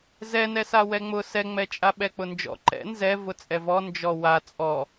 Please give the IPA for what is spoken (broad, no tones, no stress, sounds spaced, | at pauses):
z ɛ n ɛ s a w ɛ ŋ͡m ʊ s ɛ ŋ͡m ɛ t͡ʃʼ a ɓ ɛ k͡p ʊ n d͡ʒ ɔ̰ ǃ ɛ̰ n z ɛ v ʊ t͡sʼ ɛ v ɔ n d͡ʒ ɔ w a t͡sʼ ɔ